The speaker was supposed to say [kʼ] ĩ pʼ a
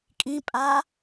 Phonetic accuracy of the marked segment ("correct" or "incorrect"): correct